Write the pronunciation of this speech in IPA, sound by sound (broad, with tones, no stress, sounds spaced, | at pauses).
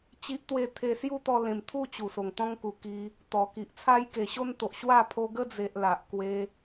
t͡ɕ i˦ ʔ t̪ w e˥˧ t̪ʰ e˧ s j u˥˧ t̪ ɔ˧ l ẽ˨˩ m t̪ʰ u˥˧ t͡ɕ u˨˩ s o˨˩ ŋ t̪ ɔ̃˦ ŋ k u˨˩ k i˧ | t̪ ɔ˨˩ k i˨ ʔ t͡sʰ a˦ j k e˨˩ ɕ o˦ n t̪ o˨ ʔ ɕ w a˥˧ pʰ o˧ ɡ ə˦ d͡z e˨ ʔ l a˨ ʔ k w e˧